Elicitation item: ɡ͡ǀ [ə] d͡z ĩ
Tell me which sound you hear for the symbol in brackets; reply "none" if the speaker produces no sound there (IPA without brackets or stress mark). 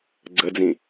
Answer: ə